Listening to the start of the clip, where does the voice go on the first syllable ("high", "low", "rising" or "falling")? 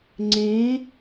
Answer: rising